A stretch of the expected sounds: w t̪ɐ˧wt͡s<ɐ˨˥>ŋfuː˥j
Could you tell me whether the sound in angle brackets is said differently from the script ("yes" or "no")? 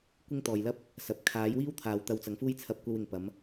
no